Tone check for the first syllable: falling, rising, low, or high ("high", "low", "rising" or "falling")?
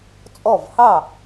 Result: falling